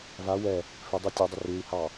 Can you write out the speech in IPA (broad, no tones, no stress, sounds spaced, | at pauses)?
v a w ɛ | f ɪ dˤ i tʲ ʉ dˤ ɪ r ʉ i̯ h ɑ